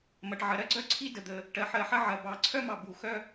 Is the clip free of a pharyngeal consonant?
no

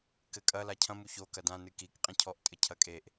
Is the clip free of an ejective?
no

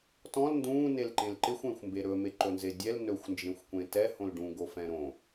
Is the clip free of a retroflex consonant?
no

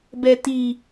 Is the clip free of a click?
yes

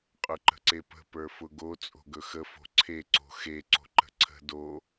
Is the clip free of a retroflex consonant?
yes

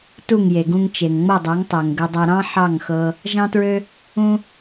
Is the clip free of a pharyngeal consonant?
no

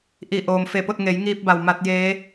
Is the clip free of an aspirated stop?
yes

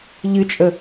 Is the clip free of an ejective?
no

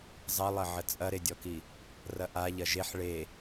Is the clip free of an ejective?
no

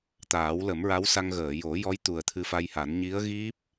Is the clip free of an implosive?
yes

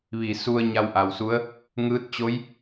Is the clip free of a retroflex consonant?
yes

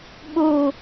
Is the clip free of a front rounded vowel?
yes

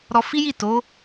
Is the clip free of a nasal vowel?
yes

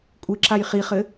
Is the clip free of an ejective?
no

